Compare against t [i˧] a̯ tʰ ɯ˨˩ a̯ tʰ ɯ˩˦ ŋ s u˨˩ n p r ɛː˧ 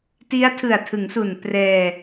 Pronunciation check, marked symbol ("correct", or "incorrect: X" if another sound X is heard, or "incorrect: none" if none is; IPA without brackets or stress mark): incorrect: i˦˥